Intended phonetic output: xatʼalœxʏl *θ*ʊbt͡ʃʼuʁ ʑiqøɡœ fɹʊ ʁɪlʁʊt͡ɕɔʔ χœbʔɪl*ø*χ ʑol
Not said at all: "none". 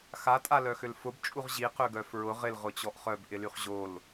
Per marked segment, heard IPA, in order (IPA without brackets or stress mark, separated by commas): f, y